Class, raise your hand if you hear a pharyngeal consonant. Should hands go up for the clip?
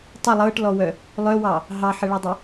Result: yes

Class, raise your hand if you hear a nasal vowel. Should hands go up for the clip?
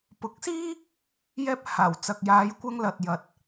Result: no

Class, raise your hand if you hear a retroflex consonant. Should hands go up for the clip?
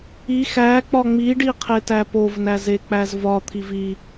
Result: yes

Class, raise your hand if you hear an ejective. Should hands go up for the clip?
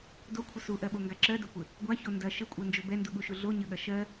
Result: yes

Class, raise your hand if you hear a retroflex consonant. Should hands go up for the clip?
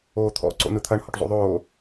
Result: yes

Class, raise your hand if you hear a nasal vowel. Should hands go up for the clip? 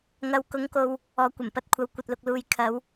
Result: no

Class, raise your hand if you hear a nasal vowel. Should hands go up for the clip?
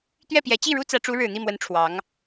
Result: no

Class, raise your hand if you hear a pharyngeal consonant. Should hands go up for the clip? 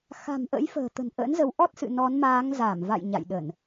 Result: no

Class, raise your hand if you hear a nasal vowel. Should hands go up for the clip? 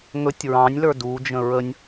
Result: yes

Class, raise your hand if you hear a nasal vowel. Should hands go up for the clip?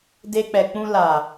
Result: yes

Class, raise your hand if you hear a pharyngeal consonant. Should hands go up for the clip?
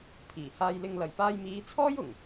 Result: no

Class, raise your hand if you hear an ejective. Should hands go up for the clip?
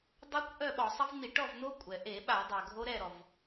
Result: yes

